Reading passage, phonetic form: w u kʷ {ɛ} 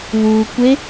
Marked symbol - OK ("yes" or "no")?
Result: no